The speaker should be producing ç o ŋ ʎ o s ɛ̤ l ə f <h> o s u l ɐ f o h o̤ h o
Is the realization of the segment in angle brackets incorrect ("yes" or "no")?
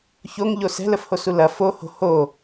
no